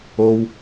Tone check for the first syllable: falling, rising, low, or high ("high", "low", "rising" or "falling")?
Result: high